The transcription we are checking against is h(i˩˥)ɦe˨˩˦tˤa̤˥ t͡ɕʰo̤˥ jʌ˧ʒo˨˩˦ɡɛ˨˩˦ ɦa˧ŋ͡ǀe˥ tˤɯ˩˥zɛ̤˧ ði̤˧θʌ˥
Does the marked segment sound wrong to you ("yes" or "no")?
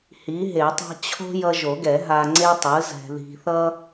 no